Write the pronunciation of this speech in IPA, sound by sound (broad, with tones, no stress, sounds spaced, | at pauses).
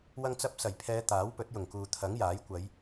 w ɐ˧ ŋ t͡s ɐ˧ p̚ s ɐ˨˩ j pʰ ɛː˨˧ t̪ aː˨˥ w p ɵ˨˥ t̚ j ʊ˨˩ ŋ k uː˨ t̪ʰ ɐ˨˥ ŋ j aː˨˥ j kʷ ɐ˨˧ j